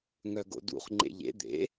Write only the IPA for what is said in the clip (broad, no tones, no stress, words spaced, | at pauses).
ŋœɡo̰dṵχ ŋ͡ǃḛʎḛ d̪ḛ